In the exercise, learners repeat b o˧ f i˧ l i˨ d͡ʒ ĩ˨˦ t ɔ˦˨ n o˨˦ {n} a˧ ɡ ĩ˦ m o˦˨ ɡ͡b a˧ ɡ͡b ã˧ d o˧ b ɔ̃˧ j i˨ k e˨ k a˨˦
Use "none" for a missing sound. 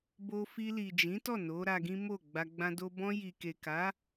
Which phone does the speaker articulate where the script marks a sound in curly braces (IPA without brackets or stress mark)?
ɾ